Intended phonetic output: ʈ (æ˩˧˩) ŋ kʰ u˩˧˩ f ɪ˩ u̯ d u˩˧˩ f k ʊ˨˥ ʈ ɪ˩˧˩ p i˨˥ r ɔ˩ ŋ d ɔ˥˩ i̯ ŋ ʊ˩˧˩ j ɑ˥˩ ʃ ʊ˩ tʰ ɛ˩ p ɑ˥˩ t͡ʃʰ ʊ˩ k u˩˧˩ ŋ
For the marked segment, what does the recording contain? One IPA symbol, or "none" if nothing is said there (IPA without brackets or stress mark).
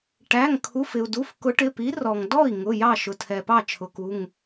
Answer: æ˩˧˩